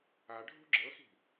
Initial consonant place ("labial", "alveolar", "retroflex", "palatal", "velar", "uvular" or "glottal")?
retroflex